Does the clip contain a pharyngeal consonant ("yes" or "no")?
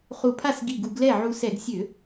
yes